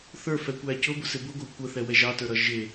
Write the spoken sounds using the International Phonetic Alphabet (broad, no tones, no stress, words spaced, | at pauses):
θə˞fɛkʷæ cʊbʊsɪ bʊɡʷɑ kʷəθɛwɛ ʒɑtə˞ɾʌ ʒɪ